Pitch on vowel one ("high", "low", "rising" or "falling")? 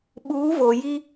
rising